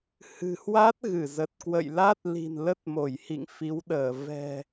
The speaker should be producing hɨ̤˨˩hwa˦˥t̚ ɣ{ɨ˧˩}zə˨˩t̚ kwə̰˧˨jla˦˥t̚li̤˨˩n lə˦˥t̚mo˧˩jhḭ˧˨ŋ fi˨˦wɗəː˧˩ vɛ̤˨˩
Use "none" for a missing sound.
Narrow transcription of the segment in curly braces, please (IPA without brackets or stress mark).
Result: ɨ˧˩